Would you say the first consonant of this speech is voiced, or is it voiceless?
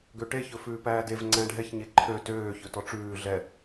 voiced